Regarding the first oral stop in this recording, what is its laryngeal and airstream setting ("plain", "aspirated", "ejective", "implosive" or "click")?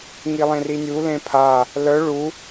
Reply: aspirated